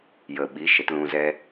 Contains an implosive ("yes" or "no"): yes